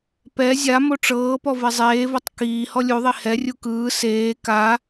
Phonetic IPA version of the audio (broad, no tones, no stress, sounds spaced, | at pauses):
p ɛ zʲ a m o ʈ͡ʂ ɤː p ɔ v e zˤ eː v o tˤ k iː h ɔ lʲ u ðˤ i h ɛ rʲ u k ɯː s eː k a